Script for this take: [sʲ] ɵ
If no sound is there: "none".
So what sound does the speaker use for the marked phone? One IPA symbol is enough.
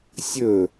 sʲ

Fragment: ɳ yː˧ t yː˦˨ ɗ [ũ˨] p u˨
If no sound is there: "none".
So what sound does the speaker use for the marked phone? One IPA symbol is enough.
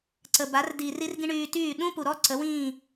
ũ˦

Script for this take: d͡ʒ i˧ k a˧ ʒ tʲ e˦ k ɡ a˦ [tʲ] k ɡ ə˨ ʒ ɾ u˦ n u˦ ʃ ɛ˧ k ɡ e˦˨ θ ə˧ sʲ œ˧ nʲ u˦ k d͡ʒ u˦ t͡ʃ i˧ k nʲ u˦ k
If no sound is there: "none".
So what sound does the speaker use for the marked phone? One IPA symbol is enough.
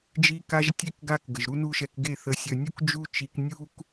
none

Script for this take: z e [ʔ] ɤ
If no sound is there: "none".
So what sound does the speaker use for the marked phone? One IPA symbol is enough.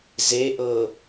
ʔ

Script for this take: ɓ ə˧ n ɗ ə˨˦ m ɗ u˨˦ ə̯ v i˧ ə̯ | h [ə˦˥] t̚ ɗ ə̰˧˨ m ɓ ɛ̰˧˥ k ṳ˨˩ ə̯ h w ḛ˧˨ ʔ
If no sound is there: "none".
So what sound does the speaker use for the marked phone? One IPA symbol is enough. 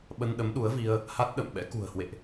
a˦˥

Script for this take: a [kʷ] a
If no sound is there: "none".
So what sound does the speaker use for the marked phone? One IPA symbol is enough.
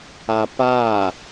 p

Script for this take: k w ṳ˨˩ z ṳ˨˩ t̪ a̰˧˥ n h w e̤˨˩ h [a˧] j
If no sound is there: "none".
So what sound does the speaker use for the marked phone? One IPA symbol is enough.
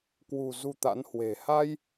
a˧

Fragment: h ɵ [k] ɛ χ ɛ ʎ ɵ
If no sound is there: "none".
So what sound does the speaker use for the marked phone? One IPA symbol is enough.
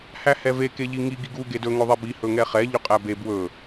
ŋ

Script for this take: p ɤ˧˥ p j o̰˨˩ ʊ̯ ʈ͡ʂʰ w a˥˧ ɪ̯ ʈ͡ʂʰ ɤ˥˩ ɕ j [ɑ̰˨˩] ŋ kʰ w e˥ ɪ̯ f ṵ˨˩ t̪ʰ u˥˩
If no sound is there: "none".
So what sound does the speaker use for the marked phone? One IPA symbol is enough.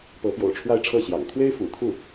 ɑ̰˨˩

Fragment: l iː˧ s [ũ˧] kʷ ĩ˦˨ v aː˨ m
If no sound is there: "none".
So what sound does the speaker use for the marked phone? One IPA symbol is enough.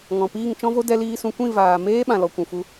ũ˧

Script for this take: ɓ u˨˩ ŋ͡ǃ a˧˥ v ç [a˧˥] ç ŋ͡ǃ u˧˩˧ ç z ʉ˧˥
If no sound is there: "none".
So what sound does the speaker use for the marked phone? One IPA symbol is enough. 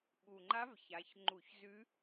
a˩˧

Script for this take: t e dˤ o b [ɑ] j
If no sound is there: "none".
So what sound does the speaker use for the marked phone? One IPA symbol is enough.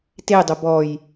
ɔ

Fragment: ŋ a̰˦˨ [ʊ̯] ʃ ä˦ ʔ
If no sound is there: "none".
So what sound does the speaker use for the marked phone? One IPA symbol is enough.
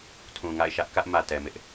ɪ̯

